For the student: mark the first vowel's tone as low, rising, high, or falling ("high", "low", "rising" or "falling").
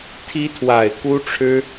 high